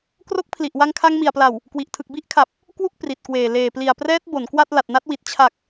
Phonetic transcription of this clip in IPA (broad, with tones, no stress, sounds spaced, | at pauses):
k r o˦˥ k̚ pʰ l i˨˩ ʔ w a˧ ŋ kʰ a˧ ŋ m i˨˩ a̯ p l a˨˩ w | k w i˨˩ ʔ tʰ ɯ˨˩ k̚ b i˥˩ ʔ kʰ a˨˩ p̚ | k w u˥˩ k̚ p r i˨˩ t̚ k w eː˨˩ l eː˨˩ p l i˨˩ a̯ p r ɛː˦˥ t̚ b o˩˦ n k w a˥˩ t̚ l a˨˩ t̚ n a˦˥ t̚ w i˨˩ t̚ t͡ɕʰ a˨˩ k̚